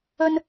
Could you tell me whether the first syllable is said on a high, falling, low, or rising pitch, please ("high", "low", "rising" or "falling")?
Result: high